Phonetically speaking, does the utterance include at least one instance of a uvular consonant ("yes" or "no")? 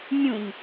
no